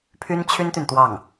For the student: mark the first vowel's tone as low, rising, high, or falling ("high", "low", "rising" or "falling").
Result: high